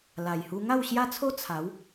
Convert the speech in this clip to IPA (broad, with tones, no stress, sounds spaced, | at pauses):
l a˨˩ j h u˧ ŋ a˥˧ w ɕ j a˦ t͡sʰ o˦ t͡sʰ a˨˦ w